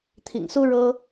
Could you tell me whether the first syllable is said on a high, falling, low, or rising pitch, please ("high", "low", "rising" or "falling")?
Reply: low